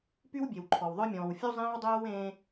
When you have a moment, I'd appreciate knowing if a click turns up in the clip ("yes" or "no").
yes